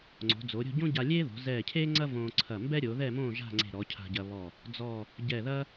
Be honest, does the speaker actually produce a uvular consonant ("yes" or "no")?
no